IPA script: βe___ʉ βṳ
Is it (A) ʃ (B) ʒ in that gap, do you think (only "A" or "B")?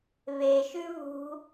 A